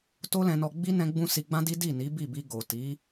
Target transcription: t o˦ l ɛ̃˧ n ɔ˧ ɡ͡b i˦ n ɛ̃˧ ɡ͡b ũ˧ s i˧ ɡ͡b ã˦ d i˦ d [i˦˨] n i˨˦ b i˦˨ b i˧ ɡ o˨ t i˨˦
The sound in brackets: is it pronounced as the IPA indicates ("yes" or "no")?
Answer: yes